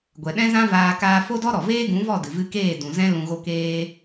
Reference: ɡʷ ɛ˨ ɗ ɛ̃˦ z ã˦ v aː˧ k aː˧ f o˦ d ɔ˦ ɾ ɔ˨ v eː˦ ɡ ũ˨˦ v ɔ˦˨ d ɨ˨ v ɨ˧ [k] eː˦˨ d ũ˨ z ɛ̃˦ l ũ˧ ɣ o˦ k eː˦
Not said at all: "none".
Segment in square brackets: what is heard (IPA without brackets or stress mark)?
k